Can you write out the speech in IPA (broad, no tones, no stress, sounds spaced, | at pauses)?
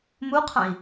m u qʰ ã i̯